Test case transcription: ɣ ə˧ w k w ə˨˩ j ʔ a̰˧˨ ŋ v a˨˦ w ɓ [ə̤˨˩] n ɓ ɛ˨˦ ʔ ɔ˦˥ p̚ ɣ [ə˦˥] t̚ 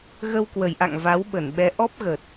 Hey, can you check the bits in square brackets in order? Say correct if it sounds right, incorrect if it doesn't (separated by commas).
incorrect, incorrect